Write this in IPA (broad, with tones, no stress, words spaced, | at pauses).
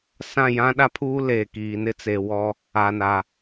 sã˦˨jã˦ ɗa˦pʰuː˦ leː˨kiː˨nɪ˦t͡se˨ wɔ˦ | a˨na˨